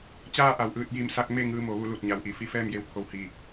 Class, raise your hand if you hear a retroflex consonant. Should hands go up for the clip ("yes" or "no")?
no